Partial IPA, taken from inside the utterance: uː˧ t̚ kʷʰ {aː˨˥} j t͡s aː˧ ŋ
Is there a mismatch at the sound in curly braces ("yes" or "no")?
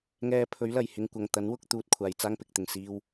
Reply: yes